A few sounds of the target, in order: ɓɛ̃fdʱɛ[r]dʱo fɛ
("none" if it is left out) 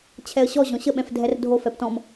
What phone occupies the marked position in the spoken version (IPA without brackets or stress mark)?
r